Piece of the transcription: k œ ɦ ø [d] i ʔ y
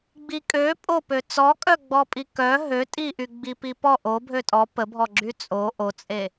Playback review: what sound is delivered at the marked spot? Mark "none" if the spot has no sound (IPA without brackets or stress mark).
tʼ